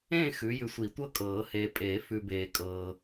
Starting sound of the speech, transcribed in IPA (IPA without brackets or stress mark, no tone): ẽ